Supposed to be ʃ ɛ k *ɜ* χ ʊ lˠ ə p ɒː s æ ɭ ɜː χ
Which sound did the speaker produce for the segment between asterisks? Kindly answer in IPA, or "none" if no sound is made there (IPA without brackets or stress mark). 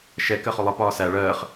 ɜ